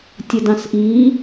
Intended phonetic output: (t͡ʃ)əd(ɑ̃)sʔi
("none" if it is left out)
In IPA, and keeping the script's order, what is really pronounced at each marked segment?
tʲ, ɑ̃

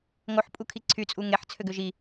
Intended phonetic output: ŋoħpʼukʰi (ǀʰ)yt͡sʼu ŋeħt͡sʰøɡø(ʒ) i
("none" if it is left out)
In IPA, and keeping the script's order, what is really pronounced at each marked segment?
ǀʰ, ʒ

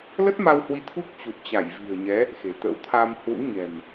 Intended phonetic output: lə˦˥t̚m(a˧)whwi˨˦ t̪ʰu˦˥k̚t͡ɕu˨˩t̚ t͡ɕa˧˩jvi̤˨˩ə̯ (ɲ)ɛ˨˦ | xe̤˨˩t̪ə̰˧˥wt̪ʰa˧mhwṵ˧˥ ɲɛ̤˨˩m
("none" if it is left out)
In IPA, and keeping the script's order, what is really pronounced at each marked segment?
a˧, ɲ

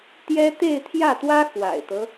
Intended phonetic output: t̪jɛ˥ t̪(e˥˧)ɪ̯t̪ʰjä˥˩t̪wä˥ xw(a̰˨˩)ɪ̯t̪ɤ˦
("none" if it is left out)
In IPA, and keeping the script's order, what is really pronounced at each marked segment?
e˥˧, a̰˨˩

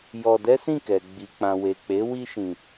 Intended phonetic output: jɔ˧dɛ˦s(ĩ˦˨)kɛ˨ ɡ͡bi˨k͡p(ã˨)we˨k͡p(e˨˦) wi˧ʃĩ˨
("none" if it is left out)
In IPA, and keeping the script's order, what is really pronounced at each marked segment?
ĩ˦˨, ã˨, e˨˦

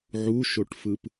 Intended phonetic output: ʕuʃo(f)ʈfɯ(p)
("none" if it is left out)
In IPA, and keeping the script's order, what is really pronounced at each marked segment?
none, p

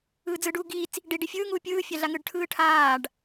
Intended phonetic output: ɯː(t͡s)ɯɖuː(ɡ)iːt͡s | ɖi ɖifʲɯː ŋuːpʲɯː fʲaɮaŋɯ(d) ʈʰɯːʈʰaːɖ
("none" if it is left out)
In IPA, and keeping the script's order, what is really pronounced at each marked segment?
d͡z, ɡ, ɖ

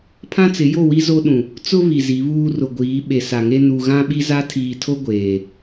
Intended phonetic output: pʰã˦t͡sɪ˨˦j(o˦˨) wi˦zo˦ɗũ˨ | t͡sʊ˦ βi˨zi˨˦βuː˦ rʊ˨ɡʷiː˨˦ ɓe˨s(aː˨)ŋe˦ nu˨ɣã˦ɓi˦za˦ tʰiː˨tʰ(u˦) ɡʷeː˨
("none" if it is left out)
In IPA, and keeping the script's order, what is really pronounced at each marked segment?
o˦˨, a˨, o˦

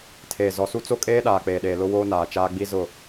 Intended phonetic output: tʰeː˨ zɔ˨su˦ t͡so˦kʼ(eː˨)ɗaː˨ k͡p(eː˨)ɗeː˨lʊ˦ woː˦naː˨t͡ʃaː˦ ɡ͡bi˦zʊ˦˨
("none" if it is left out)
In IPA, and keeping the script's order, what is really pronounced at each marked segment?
eː˦, eː˨

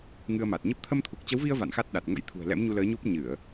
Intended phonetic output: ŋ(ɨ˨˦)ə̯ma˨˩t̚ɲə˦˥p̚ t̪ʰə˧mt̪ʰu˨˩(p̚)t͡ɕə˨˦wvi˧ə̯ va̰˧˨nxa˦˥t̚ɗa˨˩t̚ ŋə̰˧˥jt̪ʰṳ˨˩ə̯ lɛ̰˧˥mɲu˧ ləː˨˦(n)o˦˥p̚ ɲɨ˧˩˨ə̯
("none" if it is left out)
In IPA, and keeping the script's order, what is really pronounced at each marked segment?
ɨ˧, k̚, ɲ

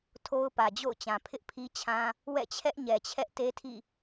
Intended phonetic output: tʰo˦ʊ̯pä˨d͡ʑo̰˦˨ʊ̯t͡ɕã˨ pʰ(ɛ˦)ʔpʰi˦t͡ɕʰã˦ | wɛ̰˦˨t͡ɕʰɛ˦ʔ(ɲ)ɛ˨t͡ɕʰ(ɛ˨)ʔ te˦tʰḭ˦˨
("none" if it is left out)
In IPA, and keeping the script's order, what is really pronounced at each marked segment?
ɪ˦, ɲ, ɛ˦

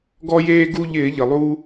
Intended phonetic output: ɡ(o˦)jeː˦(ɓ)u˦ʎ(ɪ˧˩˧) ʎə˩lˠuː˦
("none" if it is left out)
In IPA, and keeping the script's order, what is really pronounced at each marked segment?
ɔ˦, ɡ, ɪː˧˩˧

